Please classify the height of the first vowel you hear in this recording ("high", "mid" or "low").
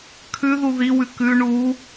high